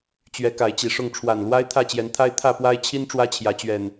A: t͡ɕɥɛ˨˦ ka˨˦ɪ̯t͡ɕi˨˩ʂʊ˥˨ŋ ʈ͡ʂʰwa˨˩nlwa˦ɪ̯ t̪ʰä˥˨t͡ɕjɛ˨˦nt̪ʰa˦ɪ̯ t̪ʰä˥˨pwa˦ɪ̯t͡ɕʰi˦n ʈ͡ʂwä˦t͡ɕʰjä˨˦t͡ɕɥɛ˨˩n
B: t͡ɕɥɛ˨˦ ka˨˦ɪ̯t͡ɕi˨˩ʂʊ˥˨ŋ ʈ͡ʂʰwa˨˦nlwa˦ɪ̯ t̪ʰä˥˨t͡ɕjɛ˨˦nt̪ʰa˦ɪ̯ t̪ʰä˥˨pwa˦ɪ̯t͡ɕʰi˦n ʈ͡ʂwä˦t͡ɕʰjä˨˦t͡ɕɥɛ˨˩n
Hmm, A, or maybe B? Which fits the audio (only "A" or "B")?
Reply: A